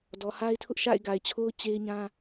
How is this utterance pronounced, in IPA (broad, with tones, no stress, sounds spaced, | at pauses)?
d ɔ˨ h a˦ ɪ̯ tʰ ʊ˦ ʔ ʃ a̰˦˨ ɪ̯ ɡ a˨ ɪ̯ t͡ɕʰ o˦ ʊ̯ t͡ɕ e˦ ɪ̯ ɲ ã˦